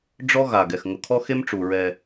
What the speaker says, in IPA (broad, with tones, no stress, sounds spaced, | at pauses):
ɖ͡ʐ ɔ˦ ɣ a˨ ɡ ɛ˨ x ŋ ʊ˨ kʰ ɔ˦ x e˦ m ʈ͡ʂ u˨ ɹ ɛ˦